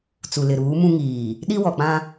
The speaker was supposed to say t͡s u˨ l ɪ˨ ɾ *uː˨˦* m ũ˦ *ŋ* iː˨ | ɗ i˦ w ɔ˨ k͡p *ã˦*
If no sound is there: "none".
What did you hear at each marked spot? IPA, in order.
uː˨˦, ŋ, ã˦

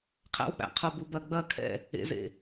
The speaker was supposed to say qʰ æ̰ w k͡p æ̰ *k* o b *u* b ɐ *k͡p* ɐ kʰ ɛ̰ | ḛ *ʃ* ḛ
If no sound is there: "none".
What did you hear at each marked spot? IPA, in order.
qʰ, u, ɡ͡b, z

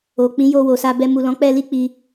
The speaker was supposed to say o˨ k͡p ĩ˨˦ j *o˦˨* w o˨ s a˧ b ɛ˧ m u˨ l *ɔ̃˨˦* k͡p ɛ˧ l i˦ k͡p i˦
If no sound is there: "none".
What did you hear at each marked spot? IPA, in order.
o˧, ɔ̃˨˦

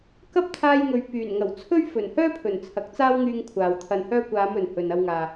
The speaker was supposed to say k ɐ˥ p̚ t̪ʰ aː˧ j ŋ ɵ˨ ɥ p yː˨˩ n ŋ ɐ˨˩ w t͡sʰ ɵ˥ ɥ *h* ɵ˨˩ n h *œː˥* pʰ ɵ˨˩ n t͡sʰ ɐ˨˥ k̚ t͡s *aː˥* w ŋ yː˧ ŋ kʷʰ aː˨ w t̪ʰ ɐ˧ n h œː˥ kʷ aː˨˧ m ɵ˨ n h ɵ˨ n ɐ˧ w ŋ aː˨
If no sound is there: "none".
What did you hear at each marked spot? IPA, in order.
f, œː˥, aː˥

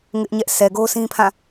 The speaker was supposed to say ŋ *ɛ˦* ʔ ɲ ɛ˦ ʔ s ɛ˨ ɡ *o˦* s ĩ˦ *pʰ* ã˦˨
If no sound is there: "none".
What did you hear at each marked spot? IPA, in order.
ɪ˦, o˦, pʰ

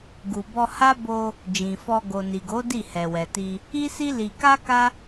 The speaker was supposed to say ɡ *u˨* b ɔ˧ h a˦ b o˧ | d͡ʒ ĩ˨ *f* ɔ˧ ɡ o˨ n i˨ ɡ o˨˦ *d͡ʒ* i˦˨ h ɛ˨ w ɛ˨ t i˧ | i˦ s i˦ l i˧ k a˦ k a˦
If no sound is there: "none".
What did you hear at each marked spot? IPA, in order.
u˨, f, d

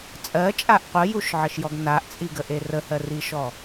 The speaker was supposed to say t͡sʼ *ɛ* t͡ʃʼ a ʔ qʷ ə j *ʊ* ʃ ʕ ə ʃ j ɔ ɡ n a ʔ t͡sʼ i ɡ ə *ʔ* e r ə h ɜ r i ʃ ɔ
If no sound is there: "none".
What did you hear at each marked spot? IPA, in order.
ɜ, u, ʔ

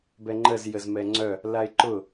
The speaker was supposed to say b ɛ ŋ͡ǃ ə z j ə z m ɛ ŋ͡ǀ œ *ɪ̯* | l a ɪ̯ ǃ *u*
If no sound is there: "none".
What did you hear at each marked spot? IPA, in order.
none, ʊ

